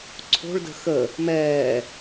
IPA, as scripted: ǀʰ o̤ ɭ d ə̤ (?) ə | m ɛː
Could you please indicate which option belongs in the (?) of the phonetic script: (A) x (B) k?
A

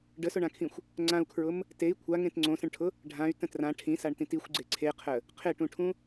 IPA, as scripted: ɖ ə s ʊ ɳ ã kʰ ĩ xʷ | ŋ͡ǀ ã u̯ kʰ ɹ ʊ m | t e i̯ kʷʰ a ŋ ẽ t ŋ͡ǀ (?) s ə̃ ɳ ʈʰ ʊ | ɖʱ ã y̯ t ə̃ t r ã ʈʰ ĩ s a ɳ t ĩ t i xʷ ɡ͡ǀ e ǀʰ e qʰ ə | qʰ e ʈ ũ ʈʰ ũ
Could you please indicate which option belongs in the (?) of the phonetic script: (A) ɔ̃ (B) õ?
B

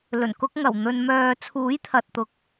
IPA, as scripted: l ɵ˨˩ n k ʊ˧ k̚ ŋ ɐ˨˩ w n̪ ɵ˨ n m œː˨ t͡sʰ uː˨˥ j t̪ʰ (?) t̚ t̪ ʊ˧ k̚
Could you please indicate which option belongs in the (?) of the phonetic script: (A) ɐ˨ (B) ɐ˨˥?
A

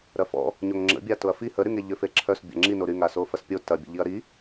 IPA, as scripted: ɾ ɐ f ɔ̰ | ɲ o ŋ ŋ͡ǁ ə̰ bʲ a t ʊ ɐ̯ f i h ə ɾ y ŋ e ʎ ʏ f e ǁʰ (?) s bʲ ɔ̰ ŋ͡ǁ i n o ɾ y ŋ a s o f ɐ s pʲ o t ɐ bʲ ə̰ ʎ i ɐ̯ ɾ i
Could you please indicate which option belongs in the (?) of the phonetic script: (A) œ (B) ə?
A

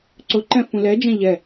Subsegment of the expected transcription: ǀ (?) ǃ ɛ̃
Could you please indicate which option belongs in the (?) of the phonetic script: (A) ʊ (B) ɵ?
A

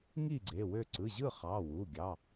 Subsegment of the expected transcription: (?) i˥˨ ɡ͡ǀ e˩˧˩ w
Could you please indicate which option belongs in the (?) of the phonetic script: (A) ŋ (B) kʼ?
A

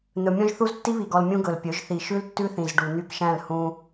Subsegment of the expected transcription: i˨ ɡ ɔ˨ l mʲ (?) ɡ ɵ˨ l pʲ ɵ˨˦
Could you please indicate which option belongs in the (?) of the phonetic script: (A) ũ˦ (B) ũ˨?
A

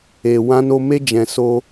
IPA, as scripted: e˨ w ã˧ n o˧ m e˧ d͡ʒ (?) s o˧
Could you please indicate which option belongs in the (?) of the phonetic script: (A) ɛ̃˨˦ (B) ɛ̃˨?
B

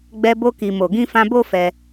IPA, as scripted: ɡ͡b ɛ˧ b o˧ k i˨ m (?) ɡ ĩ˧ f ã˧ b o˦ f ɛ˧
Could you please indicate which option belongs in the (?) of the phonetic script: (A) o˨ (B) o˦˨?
A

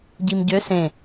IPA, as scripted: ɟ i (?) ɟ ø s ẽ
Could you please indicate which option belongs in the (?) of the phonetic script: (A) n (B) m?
B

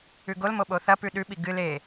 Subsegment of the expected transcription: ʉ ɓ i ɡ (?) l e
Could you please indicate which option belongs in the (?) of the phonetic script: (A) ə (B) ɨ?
B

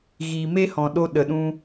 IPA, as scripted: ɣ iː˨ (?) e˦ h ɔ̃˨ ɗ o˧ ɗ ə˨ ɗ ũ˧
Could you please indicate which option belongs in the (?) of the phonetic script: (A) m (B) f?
A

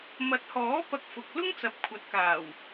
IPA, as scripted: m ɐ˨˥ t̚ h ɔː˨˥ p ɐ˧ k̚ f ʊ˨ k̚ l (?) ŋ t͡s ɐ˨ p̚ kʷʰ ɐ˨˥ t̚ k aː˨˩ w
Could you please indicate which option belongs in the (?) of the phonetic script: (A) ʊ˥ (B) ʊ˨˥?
A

